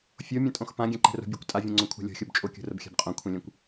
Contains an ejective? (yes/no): yes